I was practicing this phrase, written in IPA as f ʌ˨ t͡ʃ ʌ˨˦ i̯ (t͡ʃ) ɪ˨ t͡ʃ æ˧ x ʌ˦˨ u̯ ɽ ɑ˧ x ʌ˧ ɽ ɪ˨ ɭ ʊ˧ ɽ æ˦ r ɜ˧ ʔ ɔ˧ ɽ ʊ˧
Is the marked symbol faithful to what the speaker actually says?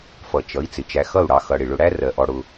no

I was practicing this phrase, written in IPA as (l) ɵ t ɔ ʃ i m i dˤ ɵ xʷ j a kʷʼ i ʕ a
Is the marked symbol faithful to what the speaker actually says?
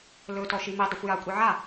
yes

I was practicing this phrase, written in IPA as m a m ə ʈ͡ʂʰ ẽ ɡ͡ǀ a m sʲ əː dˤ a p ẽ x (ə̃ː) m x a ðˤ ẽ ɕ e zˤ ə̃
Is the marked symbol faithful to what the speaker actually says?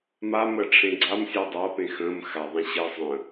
yes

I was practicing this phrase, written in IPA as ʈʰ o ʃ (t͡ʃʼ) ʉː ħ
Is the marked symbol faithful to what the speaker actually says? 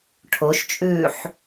yes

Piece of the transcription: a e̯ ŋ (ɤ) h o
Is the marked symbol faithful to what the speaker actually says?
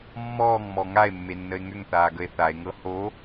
yes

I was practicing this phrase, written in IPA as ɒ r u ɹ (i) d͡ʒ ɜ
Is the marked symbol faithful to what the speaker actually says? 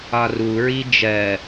yes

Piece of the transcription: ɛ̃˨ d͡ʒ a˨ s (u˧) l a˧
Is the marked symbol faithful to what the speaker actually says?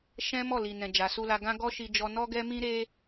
yes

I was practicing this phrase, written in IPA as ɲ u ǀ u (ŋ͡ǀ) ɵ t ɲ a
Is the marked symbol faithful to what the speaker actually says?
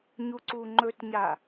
no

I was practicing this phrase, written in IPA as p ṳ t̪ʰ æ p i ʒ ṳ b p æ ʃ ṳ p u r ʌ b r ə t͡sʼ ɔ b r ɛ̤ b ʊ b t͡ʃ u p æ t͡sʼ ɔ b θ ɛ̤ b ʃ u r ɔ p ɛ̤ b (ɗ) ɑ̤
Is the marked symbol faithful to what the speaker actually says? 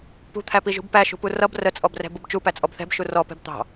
no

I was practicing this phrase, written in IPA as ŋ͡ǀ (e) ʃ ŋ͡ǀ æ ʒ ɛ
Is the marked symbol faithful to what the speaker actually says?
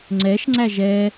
no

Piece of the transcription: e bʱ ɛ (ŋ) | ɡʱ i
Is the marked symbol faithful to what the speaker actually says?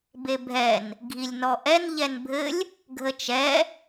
no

